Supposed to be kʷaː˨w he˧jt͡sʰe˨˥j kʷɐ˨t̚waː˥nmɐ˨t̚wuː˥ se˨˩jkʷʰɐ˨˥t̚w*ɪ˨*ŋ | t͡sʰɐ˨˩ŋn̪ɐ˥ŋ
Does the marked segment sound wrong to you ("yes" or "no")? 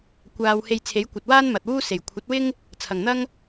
yes